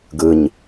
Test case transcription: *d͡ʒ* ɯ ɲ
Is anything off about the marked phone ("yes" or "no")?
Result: yes